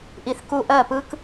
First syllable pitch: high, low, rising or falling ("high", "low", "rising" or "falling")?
low